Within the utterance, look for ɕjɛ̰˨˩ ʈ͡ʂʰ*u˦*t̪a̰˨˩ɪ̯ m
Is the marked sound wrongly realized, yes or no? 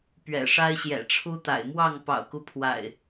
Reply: no